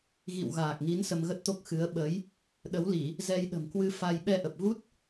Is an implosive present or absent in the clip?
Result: present